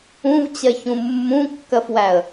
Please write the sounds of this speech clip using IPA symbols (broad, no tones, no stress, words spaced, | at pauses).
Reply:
ũvt͡ɕɜçũ mːũkːɜfwæə̯